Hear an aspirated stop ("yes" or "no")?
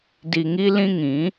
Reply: no